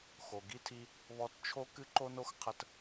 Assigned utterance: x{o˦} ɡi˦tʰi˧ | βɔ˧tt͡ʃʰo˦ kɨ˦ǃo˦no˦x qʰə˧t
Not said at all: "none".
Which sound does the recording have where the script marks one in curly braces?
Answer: o˨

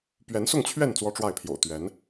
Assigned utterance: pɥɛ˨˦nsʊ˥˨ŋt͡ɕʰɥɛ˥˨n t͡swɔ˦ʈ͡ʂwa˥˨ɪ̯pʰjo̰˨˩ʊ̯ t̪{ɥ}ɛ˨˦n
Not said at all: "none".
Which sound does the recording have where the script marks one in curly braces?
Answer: ɥ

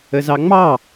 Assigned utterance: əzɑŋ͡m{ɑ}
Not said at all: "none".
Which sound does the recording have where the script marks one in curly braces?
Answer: ɑ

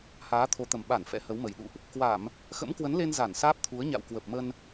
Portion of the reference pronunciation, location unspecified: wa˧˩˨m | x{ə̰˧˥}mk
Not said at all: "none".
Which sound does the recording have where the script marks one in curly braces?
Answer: ə̰˧˥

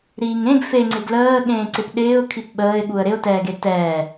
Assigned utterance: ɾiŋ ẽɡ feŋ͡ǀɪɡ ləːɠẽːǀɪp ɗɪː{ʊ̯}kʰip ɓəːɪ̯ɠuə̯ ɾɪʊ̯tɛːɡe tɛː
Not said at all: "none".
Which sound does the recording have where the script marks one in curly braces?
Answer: ʊ̯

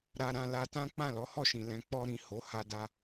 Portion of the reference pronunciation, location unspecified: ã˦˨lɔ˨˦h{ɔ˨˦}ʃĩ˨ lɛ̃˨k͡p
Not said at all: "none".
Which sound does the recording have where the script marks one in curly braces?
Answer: ɔ˦˨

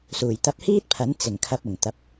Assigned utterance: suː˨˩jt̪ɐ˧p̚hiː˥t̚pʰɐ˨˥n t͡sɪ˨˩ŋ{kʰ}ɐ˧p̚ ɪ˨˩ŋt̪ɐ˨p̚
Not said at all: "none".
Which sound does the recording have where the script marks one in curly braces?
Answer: kʰ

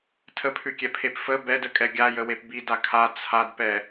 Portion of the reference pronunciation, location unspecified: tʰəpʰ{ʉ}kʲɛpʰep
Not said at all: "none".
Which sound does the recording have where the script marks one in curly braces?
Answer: ʉ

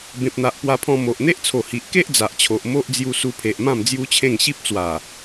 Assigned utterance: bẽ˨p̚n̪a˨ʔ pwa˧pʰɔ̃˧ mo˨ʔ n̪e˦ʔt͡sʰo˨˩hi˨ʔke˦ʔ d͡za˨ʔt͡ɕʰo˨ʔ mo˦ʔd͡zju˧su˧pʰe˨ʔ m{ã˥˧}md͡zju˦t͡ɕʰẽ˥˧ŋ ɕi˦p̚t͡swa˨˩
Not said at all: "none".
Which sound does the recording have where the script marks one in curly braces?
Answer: ã˥˧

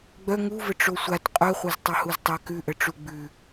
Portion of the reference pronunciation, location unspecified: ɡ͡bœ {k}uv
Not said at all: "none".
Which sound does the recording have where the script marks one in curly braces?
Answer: ŋ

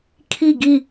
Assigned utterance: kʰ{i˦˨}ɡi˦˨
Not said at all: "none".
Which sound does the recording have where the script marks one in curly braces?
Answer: i˦˨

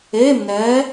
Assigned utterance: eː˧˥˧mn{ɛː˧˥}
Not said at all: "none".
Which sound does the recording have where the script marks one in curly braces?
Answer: ɛː˧˥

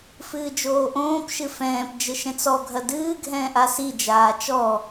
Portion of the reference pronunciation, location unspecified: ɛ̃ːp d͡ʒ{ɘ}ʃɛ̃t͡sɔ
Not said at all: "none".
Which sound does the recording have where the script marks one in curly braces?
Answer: ɘ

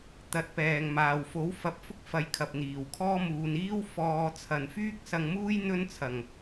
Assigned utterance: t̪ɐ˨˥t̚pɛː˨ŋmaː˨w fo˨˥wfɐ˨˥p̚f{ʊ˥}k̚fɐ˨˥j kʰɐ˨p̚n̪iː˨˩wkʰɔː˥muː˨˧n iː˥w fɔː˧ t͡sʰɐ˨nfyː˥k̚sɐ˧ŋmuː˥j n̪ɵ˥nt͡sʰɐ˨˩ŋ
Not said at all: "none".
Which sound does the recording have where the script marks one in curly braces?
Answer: ʊ˥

